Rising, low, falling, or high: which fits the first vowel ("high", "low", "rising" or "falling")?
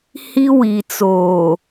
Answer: high